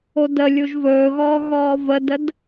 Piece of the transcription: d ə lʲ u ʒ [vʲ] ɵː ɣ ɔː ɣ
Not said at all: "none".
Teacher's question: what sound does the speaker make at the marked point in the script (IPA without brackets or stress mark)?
v